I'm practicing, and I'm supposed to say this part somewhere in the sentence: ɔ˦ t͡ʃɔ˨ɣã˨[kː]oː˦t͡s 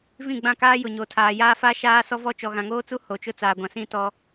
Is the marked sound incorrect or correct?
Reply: incorrect